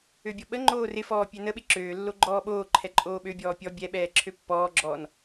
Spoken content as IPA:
ø bʲ ɔ ɓ ə ŋ͡ǃ oː r ɪ f ɔː pʲ ø n ə ɓ ɪ ǁ øː lː o ɡ͡ǃ ɔː ɓ oː ǃʰ ɛ ǃʼ oː ɓ ø bʲ ɔː pʲ ɔ bʲ ɛ ɓ ɛː ǁʰ ø pː ɔː ɡ͡ǁ ɔː n

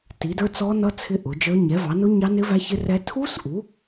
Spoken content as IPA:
t i˨˦ d ə˞˦˥ t͡s ɔ˦˥ n ʌ˦˥ t͡sʰ ɪ˦˥ ʔ ʊ˨˦ d͡ʒ ə˞˦˥ ɲ ɛ˨˦ v ɑ˨˦ n ʊ˦˥ ɲ ɑ˦˥ n ɪ˦˥ v æ˦˥ ç ɪ˦˥ r ɛ˦˥ tʰ u˦˥ s ʔ u˨˦

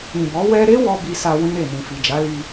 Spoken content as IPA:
ĩ˨ b ɔ˨˦ w ɛ˧ ɾ e˦ w ɔ˦ b i˧ s a˧ w ĩ˦ ɾ e˦˨ n ĩ˨ f i˨ d͡ʒ a˨˦ l i˧

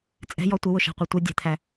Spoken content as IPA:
t͡sʼ ɛ̤ j ɔ tʷ ə w ʊ ʃ a̤ qʷ a tʷ ɘ dʲ ɛ̤ t̪ʰ æ

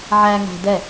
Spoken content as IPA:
ʕ æ ŋ æ̤ d ɛ

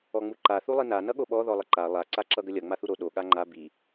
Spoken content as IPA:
ɔ ŋ͡m u ǃ a θ u lˠ i n a n ʌ ɠ o ɓ ɔ ð ɔ lˠ ə ǃ a lˠ a ǀ a ǁ ʌ ɡ ə lʲ ʌ ŋ͡m a θ u ɾ o ɗ o ɠ a ŋ͡ǃ a b i

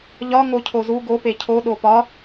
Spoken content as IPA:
ʎ ɒ ŋ o cʰ o z u ɡ o p e cʰ o ɗ o p ɒ

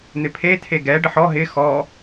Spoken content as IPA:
n̪ ɪ pʰ e tʰ e ɡ ɛ ɖ ə ħ ɔ ɦ ɪ x ɔ

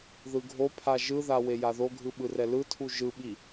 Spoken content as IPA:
ð ɯ ɡʱ o pʰ a ʒ ɯ ð a w e j a ð o ɡʱ ɯ ɓ ɯ r ɛ l ɯ tʰ u ʒ ɯ ɓ i

